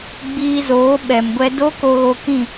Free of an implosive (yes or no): no